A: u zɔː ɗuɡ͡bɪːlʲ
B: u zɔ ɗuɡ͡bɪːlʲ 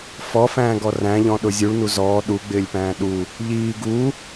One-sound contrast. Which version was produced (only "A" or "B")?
A